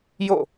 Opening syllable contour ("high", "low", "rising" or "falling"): falling